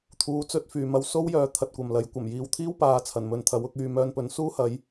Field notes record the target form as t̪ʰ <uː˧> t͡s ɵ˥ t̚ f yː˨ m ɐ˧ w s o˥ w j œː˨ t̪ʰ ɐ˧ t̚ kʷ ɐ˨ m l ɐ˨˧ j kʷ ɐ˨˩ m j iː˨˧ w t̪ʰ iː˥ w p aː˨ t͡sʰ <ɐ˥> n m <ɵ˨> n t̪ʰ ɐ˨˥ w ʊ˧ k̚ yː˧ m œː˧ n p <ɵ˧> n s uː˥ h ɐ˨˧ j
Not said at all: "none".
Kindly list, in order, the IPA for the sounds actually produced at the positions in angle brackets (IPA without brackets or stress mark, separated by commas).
uː˧, ɐ˨˩, ɵ˨, ɵ˨˧